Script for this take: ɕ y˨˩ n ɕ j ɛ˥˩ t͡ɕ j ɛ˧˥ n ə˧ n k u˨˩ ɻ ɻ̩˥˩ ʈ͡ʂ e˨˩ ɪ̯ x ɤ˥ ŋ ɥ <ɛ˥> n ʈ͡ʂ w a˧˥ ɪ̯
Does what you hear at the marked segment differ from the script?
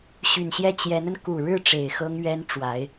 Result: no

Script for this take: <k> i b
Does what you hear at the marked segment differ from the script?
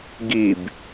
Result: yes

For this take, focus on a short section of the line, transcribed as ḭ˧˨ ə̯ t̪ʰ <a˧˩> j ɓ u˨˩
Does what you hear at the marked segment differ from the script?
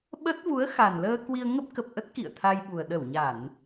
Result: yes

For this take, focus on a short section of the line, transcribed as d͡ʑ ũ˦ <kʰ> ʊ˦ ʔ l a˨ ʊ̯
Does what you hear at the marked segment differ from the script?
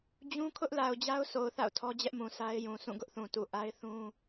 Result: no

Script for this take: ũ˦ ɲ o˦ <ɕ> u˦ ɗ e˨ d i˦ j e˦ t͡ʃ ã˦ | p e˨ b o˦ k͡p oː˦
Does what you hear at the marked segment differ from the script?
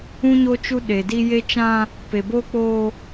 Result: yes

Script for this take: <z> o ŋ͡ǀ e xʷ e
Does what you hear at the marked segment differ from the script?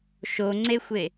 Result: yes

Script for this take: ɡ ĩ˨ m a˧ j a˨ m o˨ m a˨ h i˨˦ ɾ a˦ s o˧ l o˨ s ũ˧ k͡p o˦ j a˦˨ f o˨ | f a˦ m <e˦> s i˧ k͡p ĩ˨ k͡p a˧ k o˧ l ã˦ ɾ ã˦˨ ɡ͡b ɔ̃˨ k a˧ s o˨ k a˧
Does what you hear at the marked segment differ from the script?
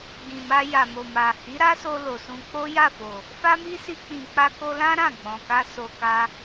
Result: yes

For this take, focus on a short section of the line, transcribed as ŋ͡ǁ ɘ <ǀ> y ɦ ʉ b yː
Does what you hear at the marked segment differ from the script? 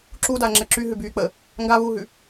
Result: yes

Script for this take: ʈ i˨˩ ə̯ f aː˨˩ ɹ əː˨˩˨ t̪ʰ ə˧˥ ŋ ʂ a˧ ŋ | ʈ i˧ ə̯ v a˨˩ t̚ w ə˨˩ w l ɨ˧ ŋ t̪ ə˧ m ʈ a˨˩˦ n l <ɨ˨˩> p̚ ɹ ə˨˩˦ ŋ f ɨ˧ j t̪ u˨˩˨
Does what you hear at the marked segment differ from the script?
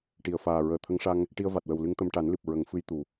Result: no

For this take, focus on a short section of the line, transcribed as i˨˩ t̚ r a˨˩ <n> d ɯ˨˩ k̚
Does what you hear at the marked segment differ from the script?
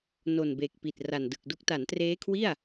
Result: no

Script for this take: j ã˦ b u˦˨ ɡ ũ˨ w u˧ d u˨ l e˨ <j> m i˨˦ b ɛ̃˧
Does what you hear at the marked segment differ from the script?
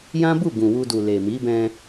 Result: yes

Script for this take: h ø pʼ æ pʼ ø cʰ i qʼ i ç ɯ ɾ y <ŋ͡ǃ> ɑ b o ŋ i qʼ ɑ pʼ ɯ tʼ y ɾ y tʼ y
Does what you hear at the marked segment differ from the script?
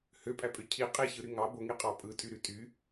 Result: yes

